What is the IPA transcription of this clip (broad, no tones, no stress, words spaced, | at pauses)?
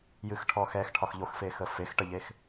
jɨxʈʰɔxɛx ʈʰɒxʎoxfexə fex ʈəʎex